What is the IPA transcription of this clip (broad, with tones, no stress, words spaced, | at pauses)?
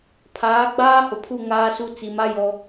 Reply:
pʰaː˨˦ɡ͡baː˦hʊ˨pʰu˦˨ ŋaː˦su˦ t͡si˨ma˦ jɔ˦